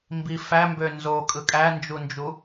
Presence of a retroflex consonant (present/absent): absent